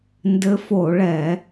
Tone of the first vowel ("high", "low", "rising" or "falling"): rising